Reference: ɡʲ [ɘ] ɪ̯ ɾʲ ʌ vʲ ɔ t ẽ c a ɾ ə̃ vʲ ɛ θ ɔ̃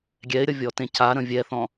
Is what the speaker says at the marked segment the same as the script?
no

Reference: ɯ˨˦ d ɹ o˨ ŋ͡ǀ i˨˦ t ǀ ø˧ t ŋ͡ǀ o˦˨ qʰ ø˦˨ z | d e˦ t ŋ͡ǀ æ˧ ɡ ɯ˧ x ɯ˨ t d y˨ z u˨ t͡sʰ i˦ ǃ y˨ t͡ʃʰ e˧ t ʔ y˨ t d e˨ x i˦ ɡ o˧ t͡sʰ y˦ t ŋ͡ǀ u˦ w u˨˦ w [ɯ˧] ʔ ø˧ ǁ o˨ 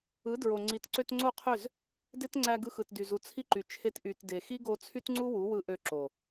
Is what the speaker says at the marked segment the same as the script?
yes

